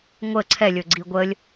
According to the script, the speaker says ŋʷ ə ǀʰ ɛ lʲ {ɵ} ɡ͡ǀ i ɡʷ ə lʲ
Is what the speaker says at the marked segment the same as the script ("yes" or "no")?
yes